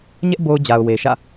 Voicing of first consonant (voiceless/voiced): voiced